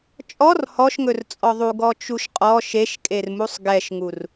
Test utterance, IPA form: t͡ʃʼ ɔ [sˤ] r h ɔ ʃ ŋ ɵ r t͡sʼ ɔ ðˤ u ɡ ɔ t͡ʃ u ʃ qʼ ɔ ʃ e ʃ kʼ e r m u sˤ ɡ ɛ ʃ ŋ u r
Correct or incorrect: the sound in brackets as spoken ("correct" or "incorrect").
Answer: incorrect